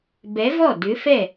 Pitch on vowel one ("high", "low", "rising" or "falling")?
rising